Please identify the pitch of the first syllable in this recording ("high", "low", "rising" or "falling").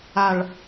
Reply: low